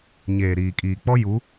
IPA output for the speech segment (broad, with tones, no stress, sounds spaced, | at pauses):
ɲ eː˨ ɾ iː˨ kʼ iː˨ k͡p ɔ˦ j u˨˦